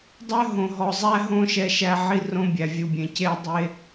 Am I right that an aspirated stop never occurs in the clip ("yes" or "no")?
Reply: yes